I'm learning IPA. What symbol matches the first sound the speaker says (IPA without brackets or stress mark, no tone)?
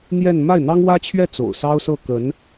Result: n̪